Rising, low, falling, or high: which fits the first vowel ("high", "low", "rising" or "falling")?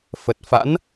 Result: low